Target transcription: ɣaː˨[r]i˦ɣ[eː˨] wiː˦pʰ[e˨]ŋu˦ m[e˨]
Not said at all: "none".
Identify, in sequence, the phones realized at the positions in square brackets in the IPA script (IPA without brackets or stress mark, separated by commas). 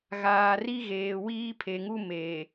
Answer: r, eː˨, e˨, eː˨